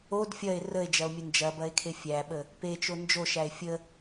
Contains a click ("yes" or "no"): no